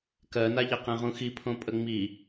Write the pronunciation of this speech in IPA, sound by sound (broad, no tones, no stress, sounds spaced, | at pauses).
k ɜ n a ʎ ɛ q ɛ̃ ʁ ũ x i pʰ õ pʼ ə ŋ͡m i